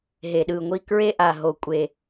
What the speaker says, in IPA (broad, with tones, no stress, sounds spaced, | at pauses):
ɦ e˩ ɗ ɯ˩ ŋʷ i˧ k ɹ e˥ ʔ a˩ ɦ o˩ kʷʼ e˩